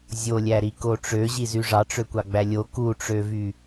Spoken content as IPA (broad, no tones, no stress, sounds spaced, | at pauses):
zʲ o lʲ æ ɾ i k o ʈ͡ʂ ø ʑ i z y ʐ ɑ ʈ͡ʂ ø kʷ ɑ ɡ͡b æ lʲ o k u ʈ͡ʂ ø v y